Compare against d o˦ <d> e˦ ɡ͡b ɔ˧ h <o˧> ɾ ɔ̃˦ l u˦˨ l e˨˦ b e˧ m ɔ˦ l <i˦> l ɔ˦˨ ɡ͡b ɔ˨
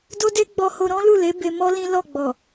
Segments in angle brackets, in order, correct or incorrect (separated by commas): correct, correct, incorrect